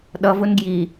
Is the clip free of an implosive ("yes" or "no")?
no